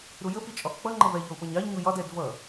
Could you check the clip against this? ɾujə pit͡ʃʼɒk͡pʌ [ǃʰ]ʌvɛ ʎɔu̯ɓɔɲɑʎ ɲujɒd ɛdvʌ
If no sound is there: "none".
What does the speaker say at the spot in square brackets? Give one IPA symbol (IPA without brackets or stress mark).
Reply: ŋ͡ǃ